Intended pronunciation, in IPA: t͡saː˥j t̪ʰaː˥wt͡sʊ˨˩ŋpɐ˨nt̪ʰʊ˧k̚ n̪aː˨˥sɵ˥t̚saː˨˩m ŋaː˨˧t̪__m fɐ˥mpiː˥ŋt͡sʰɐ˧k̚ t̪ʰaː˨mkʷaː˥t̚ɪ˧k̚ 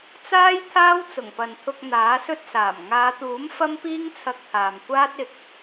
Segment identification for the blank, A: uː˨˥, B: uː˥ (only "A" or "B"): A